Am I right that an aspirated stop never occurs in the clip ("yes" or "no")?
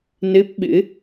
yes